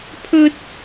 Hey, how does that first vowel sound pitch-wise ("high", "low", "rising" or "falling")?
high